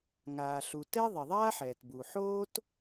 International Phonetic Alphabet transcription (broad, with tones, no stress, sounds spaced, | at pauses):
ŋ aː˩ ɬ u˩ t ɛ˥ ðˤ i˩ ðˤ aː˥ ħ ɛː˩ t b u˩ ħ oː˥ t